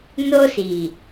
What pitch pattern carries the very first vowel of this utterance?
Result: high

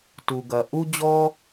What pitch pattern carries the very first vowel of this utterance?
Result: low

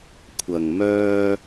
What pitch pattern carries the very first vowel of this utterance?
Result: low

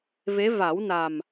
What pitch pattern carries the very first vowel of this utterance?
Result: rising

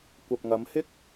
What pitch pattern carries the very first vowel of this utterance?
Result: low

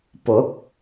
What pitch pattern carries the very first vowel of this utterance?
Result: rising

